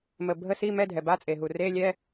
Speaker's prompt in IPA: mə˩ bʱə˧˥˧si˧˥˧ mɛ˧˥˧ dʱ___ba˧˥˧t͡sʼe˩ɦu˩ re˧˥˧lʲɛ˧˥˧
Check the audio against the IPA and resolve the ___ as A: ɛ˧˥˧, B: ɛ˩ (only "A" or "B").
B